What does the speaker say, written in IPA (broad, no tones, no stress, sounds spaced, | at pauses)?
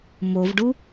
m o v ɖ u